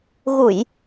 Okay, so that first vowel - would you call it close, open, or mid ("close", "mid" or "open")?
close